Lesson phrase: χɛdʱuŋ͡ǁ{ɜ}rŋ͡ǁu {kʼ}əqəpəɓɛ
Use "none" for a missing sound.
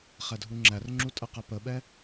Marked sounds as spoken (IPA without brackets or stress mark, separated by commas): æ, tʼ